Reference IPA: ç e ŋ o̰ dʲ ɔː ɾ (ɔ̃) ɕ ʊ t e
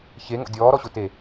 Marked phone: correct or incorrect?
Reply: incorrect